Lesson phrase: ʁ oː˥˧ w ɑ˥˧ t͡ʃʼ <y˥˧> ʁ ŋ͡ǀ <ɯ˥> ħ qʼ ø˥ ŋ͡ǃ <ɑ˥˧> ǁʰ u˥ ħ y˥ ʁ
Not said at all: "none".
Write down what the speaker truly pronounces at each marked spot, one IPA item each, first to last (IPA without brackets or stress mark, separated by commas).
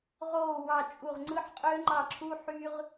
u˥˧, ɯ˥, ɑ˥˧